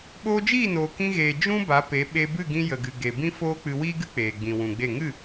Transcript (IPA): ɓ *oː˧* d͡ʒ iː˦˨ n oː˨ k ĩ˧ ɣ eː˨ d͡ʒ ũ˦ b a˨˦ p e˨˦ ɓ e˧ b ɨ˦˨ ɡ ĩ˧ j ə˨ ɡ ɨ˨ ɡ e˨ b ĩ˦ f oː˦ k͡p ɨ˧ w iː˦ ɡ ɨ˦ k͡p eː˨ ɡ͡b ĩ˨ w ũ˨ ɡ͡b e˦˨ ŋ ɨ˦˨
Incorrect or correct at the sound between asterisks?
correct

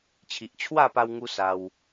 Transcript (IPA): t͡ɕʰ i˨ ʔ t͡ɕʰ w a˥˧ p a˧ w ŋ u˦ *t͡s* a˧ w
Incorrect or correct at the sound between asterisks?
incorrect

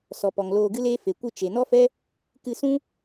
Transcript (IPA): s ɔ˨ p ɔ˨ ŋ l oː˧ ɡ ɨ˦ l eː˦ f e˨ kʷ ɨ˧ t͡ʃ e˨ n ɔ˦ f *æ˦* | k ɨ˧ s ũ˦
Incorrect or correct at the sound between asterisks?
incorrect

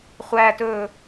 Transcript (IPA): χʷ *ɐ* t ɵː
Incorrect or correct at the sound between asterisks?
incorrect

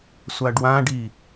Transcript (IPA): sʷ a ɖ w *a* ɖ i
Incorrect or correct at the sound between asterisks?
incorrect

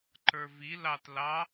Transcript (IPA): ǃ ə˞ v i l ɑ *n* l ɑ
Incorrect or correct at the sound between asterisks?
incorrect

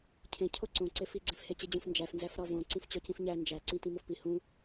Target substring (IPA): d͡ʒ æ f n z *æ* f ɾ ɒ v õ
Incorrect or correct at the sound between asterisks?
correct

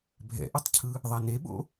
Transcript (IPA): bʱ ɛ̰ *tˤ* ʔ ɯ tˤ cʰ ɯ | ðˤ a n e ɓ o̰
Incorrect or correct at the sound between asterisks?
incorrect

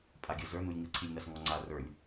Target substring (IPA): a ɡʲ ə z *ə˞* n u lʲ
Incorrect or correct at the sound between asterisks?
correct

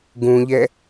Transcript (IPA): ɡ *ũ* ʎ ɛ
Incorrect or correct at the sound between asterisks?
correct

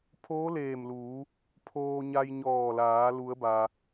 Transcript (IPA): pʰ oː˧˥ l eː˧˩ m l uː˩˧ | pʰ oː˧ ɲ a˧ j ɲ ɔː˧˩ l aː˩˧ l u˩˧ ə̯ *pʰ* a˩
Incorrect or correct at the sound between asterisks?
incorrect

